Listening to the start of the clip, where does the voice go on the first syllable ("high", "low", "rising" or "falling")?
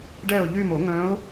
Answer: falling